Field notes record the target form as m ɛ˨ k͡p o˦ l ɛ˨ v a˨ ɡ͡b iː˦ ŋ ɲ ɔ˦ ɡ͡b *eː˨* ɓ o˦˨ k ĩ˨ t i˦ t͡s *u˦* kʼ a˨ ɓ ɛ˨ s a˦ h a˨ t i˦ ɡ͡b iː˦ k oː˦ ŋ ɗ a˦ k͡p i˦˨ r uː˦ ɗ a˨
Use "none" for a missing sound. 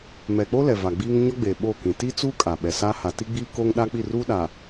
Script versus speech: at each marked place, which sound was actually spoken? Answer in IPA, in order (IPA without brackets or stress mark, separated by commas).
eː˨, u˦